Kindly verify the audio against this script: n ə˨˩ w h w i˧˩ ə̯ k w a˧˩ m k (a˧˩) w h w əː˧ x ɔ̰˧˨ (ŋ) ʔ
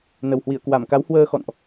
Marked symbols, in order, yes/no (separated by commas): no, no